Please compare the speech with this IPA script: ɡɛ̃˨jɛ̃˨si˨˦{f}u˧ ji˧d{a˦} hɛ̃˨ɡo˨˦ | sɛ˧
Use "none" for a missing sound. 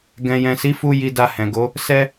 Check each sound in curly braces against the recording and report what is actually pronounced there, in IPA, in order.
f, a˧

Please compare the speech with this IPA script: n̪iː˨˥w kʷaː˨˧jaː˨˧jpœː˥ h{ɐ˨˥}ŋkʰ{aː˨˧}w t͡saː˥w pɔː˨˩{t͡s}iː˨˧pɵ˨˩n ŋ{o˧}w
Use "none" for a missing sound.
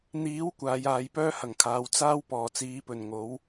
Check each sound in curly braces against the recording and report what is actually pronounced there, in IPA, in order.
ɐ˨˩, aː˨˧, t͡s, o˨˥

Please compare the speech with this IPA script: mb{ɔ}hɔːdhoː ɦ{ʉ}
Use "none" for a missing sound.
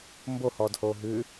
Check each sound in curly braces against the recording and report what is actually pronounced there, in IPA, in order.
o, ʉ

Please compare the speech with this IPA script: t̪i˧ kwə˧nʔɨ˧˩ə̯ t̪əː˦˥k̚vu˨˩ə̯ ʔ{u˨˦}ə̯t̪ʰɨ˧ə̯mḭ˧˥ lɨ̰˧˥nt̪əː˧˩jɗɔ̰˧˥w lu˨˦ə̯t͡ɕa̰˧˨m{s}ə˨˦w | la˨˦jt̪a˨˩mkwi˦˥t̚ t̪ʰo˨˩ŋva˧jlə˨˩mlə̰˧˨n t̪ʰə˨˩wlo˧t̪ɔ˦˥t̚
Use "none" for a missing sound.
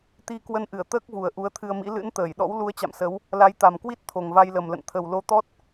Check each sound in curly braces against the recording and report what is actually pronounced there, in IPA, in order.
u˨˦, s

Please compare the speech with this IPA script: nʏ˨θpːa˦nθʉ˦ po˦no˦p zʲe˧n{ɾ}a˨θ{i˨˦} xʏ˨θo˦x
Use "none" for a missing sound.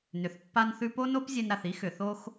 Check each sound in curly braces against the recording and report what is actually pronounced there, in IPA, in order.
ɾ, i˦

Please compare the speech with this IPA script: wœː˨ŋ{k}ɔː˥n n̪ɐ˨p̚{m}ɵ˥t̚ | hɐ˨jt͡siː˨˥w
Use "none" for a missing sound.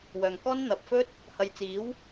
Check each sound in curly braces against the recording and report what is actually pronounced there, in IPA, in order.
k, f

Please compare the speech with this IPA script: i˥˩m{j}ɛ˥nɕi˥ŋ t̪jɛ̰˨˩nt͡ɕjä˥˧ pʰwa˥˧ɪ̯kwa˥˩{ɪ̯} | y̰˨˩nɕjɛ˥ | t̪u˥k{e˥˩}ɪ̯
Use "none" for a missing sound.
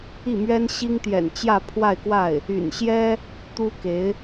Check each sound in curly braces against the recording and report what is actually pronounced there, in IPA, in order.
ɥ, ɪ̯, e˧˥

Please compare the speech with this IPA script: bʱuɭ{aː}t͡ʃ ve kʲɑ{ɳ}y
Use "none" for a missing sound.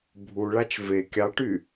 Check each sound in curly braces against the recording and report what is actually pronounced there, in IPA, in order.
a, ʈ

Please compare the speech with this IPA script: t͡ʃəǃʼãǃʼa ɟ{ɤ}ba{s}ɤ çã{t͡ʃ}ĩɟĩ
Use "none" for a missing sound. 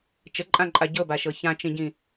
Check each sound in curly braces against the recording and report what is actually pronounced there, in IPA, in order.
ɤ, ʃ, t͡ʃ

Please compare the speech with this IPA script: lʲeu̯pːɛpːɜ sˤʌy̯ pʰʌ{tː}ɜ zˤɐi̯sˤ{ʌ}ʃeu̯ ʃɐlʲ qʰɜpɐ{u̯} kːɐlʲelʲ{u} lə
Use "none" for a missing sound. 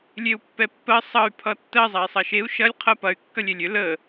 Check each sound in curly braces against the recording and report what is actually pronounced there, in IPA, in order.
tː, ʌ, y̯, ʏ

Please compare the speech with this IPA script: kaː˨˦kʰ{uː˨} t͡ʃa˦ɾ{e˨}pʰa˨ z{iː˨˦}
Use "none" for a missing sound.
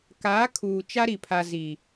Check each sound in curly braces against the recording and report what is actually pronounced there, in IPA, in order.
uː˨, i˨, iː˨

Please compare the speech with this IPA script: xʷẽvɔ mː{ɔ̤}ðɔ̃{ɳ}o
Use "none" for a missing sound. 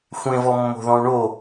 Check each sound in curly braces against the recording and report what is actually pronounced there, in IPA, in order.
o̤, ɳ

